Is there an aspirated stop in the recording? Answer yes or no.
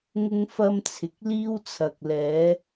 yes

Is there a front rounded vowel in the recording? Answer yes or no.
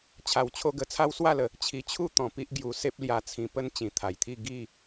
no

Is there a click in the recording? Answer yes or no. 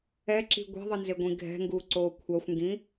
yes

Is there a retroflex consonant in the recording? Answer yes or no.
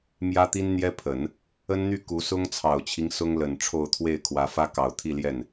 yes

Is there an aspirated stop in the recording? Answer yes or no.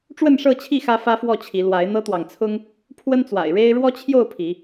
yes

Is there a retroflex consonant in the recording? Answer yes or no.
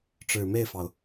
yes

